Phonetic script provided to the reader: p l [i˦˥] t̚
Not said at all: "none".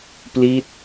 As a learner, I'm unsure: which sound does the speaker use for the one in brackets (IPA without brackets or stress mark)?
i˦˥